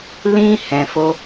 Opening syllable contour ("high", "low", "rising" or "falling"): high